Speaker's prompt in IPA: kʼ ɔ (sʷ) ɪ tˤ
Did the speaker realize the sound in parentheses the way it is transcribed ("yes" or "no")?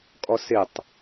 no